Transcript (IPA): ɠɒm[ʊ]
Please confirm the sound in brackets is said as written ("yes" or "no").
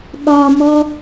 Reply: no